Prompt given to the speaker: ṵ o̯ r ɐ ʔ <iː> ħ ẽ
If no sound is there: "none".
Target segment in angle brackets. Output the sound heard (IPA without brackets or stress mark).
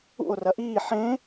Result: iː